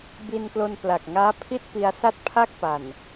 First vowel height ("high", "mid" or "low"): high